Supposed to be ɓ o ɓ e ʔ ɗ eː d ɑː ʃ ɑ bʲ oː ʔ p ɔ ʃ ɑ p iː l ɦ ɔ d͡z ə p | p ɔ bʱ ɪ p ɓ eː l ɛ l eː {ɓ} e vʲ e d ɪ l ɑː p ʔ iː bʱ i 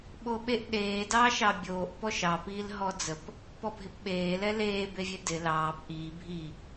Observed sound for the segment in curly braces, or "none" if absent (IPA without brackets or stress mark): b